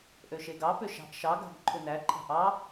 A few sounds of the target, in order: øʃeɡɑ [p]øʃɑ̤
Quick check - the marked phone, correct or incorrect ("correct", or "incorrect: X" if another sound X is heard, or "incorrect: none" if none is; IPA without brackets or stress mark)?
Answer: correct